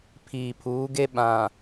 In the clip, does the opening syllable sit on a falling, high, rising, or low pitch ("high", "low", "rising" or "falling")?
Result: low